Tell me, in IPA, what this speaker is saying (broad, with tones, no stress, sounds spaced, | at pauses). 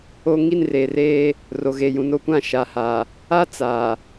o˦ ŋ i˦˨ n r eː˨ r eː˦ | r o˨ ɣ e˨ j ũ˨ n o˦ kʷ ã˦˨ ʃ a˨ h aː˨ | a˦ t͡s aː˨